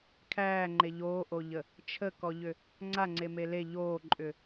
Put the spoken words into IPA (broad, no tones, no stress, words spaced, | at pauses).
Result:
kʰæːŋ͡ǃe ʎoːʔoʎə | t͡ʃʰəkɔʎʏ | ŋ͡ǀaŋ͡ǀeme le ʎoːǃʼʏ